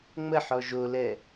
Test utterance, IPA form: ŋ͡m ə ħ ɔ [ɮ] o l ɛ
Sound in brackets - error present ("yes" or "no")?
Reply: yes